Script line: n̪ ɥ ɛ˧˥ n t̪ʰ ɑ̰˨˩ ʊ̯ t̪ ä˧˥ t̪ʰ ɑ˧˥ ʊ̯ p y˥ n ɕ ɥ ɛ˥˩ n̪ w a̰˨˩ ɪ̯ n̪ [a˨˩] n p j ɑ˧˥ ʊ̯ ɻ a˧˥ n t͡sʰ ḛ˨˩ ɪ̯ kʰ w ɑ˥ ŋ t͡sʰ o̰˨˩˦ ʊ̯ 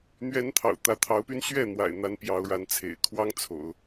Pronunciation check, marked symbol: incorrect: a˧˥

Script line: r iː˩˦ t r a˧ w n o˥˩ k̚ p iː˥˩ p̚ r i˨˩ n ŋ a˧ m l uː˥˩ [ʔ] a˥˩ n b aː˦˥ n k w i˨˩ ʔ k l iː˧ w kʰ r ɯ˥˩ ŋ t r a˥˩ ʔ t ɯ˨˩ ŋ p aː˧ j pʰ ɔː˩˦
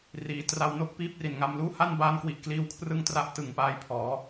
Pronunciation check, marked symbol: incorrect: h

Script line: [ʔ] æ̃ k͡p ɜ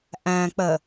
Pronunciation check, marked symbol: correct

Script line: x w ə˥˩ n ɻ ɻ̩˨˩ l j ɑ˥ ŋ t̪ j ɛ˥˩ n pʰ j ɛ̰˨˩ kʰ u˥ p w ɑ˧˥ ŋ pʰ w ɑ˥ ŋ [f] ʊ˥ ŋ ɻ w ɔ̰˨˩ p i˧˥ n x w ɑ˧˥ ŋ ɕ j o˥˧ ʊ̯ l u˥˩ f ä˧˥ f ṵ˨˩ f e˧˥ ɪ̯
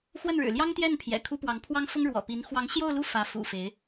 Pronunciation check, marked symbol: correct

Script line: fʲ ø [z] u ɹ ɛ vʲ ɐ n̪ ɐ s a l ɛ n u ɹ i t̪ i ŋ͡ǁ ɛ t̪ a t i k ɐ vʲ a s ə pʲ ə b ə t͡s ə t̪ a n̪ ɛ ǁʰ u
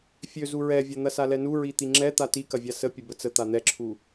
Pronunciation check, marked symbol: correct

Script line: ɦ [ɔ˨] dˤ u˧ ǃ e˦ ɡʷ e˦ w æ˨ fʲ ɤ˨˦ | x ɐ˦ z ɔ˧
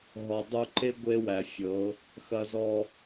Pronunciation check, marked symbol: correct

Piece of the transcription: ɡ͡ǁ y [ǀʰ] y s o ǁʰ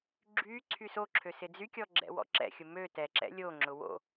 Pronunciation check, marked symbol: correct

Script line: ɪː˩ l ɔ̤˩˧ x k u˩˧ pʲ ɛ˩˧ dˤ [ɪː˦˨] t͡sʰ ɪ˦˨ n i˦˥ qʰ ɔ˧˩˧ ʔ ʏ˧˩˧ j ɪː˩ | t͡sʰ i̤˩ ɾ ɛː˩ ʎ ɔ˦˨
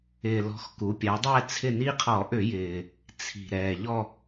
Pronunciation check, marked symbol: incorrect: ɛː˦˨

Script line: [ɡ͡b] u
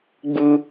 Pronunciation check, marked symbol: correct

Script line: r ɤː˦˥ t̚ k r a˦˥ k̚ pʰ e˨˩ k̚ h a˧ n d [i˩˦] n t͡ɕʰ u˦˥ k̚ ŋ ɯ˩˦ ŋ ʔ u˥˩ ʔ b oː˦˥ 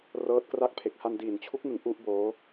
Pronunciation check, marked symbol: incorrect: iː˩˦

